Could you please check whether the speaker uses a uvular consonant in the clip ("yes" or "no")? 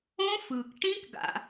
no